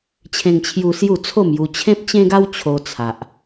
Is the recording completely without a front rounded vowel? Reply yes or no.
yes